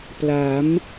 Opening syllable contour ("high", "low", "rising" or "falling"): rising